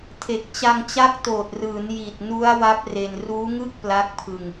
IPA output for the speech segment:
tʰ e˨˩ k̚ t͡ɕ a˧ ŋ t͡ɕ a˦˥ k̚ t oː˨˩ t̚ r ɯː˩˦ n j i˨˩ t̚ n u˦˥ a̯ w a˦˥ p̚ r e˧ n r uː˦˥ ŋ ɯ˥˩ k̚ p l a˦˥ k̚ pʰ ɯ˧ ŋ

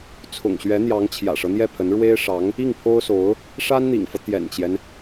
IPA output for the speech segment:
t͡sʰ ʊ̰˨˩ ŋ ɕ ɥ ɛ˧˥ n̪ j ɑ˧˥ ŋ t͡ɕʰ j ä̰˨˩ ʂ ɤ˦ n̪ j ɛ˥˩ pʰ ə˧˥ n ɻ w e˥ ɪ̯ ʂ ɑ˧˥ ŋ | i˥˩ ŋ pʰ o˥ ʊ̯ s o˧˥ ʊ̯ | ʂ a˥ n n̪ ḭ˨˩ ŋ f ɤ˦ t̪ j ɛ̰˨˩ n t͡ɕ j ɛ˦ n

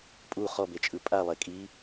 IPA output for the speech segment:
pʼ u χ ɔ b e t͡ʃʼ ɯ pʼ a lˠ e kʼ i

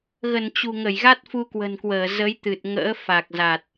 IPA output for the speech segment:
ɣ ə˧˩ n t͡ɕ ṳ˨˩ ŋ ə˧˩ j ɣ a˦˥ t̚ f u˧ k w ə̤˨˩ n k w əː˧˩ z ə˨˦ j t̪ ɨ˨˩ t̚ ŋ ə̰ː˧˥ f a˨˩ k̚ z a˨˩ t̚

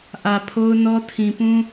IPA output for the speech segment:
ʔ ä˨ pʰ o˦ ʊ̯ n ɔ˦ tʰ ĩ˨ p ũ˦

